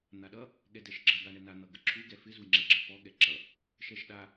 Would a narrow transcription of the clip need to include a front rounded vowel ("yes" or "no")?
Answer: no